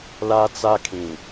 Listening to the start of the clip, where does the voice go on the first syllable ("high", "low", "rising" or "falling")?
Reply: high